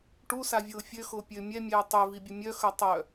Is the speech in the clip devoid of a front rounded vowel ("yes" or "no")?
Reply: no